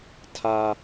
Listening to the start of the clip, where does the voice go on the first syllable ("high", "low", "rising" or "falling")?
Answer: high